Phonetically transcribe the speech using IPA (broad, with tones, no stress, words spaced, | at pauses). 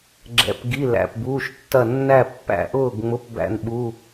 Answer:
ɡ͡ǁɛ̰˩˧˩p ɡi˩˧˩ læ̰˩˧˩pbuː˩˧˩ʃtːɐ˧˩ nːæ˧˩pːæ̰˧˩ʔʊː˧˩ɡŋ͡mʊ˩˧˩p bæ̰˧˩nɓu˩˧˩